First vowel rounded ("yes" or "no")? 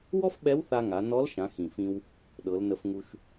yes